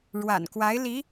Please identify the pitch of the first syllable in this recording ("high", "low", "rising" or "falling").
low